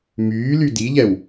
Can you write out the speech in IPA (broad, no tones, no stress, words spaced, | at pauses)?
myːly diʎɛw